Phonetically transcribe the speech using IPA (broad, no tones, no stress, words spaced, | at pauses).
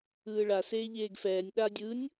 ɯːɭa seːʎeːɡfɛːnʲ ɗa dʲɯnʲ